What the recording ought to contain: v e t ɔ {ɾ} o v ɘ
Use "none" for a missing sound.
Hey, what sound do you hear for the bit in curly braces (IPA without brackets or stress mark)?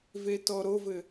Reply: ɾ